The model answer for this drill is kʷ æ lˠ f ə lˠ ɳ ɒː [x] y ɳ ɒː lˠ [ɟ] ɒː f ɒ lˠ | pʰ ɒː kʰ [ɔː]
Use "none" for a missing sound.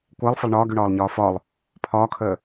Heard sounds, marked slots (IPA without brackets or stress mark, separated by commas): ɡ, ɲ, əː